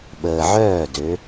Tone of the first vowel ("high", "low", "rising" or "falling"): low